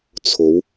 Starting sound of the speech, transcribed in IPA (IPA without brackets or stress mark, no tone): t͡sʰ